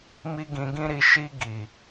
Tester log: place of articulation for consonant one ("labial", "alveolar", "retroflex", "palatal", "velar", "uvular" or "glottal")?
labial